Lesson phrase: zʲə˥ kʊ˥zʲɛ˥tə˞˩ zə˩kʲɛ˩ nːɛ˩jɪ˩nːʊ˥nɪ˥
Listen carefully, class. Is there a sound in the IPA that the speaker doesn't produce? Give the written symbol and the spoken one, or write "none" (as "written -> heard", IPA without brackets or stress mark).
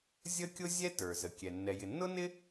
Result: k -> kʲ